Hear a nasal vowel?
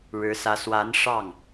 no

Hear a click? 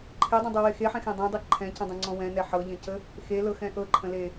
yes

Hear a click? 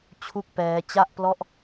no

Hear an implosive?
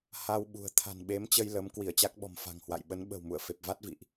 yes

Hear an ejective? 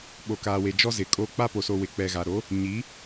yes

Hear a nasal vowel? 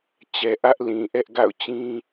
yes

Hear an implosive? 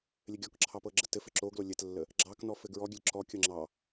no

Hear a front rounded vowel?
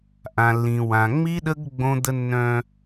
yes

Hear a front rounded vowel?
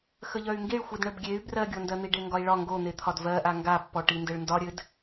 yes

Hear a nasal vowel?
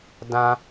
yes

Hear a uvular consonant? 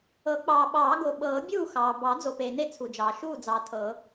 no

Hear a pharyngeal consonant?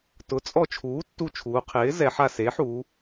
yes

